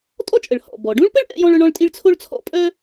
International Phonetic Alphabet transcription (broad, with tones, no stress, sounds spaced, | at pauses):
tʼ ɔ˥ t͡ʃʼ ə˩ ɭ h ɔ̰˩ b ɔ˩ ɖ ũ˥ ɭ p ə˥ ɭ ʔ ɛ̰˥ j ɔ̃˥ ɭ œ˥ ɳ ɔ̃˥ ɭ tʼ i˥ ɭ t͡sʰ o˥ ɭ t͡sʰ ɔ̰˥ pʼ œ˥